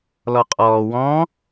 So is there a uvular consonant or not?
yes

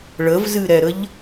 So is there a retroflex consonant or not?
yes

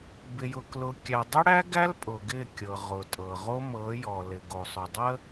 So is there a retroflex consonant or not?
yes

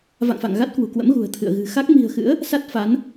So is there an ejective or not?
no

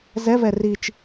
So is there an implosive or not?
no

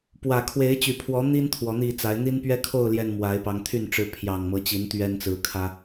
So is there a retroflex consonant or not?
yes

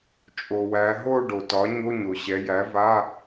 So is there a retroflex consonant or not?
yes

